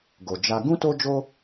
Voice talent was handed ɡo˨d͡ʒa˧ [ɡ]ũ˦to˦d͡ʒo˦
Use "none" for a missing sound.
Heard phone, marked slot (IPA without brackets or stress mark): ɡ